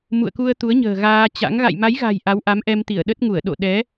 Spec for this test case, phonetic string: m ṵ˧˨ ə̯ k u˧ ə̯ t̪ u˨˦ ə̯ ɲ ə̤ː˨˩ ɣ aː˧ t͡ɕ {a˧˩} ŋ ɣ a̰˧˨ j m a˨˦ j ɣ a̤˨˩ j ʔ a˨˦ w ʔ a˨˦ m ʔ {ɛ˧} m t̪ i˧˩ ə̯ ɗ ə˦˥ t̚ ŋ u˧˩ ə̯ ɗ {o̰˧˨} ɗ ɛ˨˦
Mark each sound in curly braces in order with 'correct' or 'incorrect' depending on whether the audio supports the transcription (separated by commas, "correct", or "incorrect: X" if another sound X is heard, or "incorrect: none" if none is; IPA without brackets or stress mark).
incorrect: a̰˧˥, correct, correct